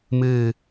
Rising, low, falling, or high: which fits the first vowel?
falling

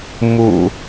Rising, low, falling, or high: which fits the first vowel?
low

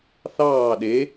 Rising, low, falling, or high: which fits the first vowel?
falling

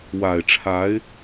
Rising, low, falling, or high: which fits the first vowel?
low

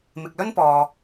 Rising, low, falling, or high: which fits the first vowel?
low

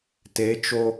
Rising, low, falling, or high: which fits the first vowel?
rising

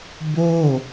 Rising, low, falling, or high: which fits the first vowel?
falling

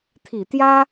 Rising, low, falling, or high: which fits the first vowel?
low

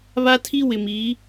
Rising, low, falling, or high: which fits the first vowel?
high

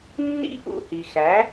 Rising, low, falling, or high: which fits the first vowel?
high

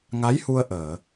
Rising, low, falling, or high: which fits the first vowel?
rising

